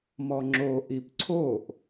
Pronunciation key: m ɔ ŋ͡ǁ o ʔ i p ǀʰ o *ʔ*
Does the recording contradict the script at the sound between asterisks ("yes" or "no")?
no